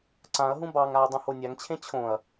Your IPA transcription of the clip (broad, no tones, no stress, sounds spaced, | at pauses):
ǀ ã ɐ̯ ɦ ũ b ɑ ŋ a ɐ̯ dˤ ũ h o nʲ a ŋ t͡ɕʰ ẽ t͡ɕʰ õ ɐ̯